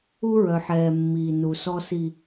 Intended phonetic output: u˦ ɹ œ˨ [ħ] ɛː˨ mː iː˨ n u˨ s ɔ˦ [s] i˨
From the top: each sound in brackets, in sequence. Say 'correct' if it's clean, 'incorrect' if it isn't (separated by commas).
correct, correct